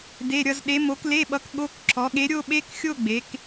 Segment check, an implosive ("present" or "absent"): present